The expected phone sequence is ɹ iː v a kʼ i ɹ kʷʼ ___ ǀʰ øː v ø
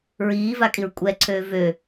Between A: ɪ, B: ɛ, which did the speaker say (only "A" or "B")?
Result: B